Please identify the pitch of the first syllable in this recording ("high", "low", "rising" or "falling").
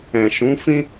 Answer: low